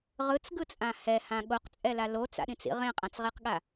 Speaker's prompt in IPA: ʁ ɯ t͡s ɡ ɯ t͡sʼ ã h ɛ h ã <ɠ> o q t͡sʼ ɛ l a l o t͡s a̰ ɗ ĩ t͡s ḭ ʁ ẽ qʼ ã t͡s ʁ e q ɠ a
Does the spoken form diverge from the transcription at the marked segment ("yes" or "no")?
no